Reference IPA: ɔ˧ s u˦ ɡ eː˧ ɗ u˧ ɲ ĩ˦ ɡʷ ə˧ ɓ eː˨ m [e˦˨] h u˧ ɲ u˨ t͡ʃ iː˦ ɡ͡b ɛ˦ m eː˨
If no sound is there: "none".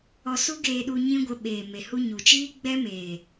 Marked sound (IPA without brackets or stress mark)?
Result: e˨